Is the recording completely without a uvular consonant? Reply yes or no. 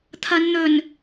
yes